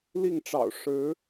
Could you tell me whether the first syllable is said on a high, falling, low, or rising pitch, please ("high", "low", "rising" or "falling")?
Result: falling